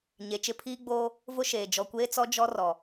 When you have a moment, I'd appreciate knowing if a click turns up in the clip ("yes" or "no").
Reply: no